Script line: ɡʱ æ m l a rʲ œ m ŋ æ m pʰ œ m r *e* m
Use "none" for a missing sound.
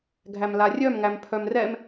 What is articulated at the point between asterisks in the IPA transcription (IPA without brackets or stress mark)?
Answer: ɛ